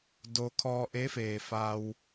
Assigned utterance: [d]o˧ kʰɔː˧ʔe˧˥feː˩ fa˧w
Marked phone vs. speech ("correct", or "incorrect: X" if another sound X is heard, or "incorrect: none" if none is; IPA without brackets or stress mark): correct